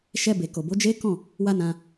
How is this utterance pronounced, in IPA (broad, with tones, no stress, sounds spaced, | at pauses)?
ʃ ɛ˧ b e˨ k o˨ b o˨˦ d͡ʒ e˦ k ɔ̃˦˨ | w a˦ n ã˧